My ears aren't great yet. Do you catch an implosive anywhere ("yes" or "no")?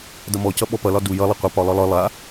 yes